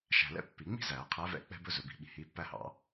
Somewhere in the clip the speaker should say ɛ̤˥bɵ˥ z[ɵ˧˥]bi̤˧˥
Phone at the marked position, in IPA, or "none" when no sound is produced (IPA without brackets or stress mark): ɵ˧˥